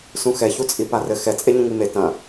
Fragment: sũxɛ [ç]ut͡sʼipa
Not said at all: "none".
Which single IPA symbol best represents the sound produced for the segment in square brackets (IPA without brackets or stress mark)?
ç